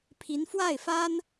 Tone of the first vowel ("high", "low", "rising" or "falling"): rising